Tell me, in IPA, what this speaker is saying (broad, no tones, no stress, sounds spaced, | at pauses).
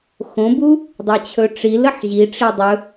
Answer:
x õ b u | dˤ ɛ t͡ɕʰ ɵ ʈ͡ʂ i l ə ħ ʑ i ʈ͡ʂ i dˤ ɵ